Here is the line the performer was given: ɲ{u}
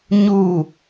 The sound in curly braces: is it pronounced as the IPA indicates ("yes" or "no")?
yes